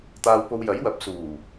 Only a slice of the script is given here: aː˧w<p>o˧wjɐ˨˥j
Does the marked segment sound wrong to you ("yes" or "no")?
no